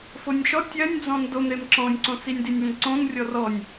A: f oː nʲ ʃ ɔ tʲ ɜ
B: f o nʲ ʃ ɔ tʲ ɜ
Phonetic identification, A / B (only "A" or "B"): B